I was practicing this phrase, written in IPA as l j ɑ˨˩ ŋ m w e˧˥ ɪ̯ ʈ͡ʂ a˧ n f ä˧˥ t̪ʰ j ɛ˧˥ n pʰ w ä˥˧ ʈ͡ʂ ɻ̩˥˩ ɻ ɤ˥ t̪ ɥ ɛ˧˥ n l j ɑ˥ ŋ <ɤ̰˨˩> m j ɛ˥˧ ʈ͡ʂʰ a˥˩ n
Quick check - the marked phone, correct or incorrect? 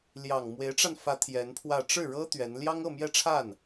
incorrect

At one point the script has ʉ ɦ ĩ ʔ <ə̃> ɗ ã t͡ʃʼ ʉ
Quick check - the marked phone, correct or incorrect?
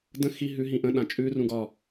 correct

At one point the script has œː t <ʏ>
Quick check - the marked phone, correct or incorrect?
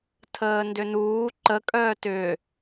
correct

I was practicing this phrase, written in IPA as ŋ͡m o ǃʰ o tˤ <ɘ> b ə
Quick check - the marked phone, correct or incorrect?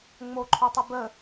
correct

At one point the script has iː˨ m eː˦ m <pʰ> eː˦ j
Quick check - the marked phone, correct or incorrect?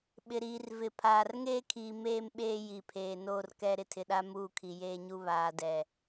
incorrect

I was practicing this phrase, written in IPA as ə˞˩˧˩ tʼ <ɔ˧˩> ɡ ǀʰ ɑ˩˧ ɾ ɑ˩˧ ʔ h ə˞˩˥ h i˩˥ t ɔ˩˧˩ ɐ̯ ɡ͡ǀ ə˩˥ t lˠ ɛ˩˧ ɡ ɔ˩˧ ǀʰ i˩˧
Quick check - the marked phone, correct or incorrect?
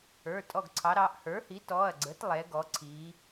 correct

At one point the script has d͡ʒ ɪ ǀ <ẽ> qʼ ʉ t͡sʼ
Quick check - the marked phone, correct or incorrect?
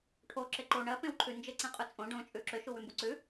correct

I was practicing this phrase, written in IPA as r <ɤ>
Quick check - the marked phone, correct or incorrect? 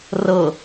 correct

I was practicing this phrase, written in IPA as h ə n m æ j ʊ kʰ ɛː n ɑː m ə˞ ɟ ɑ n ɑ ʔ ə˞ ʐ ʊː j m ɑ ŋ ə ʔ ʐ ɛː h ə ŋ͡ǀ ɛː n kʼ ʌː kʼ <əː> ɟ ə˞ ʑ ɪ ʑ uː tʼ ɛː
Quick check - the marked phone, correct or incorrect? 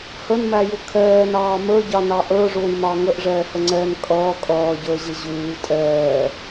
incorrect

